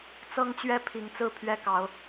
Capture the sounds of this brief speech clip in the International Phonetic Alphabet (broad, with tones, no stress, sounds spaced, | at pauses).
t͡s ɤ˦ ŋ t͡ɕ ɥ ɛ˦ pʰ i˨˦ ŋ t͡s ɹ̩˥˨ pʰ ɥ ɛ˦ k ɑ˨˦ ʊ̯